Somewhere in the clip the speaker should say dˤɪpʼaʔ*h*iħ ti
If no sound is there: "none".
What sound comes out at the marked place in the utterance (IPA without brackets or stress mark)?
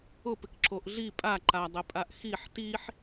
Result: x